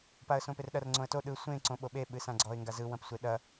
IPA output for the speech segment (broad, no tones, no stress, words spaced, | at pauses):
paə̯sõperɗɐr ŋ͡ǀõə̯to ɗɯ sʷẽ ǀõɓoɓe ɓɨsãɡ͡ǀɔɪ̯ ŋɡazɯ wɐ̃psʷeɗɐ